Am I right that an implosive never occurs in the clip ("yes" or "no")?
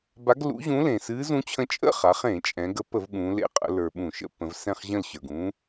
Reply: no